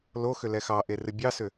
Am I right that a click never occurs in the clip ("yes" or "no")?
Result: yes